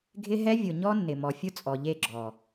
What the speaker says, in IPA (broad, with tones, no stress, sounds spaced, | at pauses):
ɡʱ ɪ˦ ɦ ɛ˦ vʲ ʊ˨ ɲ ɔ˦ nː ɪ˨ m ɔ˨ fʲ ʊ˦ t͡sʼ ɔ˨ ʎ e˦˨ ɡ͡ǁ ɔ˨